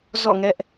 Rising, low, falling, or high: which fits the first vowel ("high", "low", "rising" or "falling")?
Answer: falling